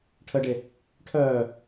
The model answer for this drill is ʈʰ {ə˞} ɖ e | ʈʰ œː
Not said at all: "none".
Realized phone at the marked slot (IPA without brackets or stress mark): ə